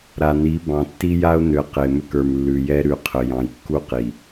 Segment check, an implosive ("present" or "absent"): absent